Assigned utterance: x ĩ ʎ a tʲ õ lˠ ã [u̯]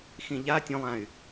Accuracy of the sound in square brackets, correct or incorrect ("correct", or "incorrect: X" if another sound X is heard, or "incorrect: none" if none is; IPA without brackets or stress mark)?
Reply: incorrect: y̯